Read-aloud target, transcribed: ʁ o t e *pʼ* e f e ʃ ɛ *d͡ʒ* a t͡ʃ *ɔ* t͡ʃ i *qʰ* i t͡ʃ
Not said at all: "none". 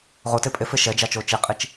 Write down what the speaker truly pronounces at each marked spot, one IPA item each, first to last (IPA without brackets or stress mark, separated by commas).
pʼ, d͡ʒ, o, qʼ